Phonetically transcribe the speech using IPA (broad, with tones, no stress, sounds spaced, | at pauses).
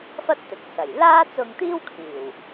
f ɐ˥ t̚ t̪ ɪ˨˥ k̚ s ɐ˨˩ j l aː˥ t͡s ʊ˧ ŋ t̪ iː˥ w kʰ iː˨˩ w